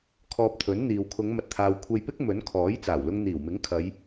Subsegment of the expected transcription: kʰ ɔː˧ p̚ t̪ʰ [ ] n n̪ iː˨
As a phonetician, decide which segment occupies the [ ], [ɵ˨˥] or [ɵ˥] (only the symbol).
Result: ɵ˨˥